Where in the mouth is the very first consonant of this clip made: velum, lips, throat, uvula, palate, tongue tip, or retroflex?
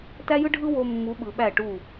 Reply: tongue tip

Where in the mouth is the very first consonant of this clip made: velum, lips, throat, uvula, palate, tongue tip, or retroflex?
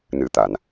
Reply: tongue tip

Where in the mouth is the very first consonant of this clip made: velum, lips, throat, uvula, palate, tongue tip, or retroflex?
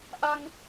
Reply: throat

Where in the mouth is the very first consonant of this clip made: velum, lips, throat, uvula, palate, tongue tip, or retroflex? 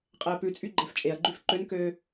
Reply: uvula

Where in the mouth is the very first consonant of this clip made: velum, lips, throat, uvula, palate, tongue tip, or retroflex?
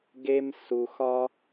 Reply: velum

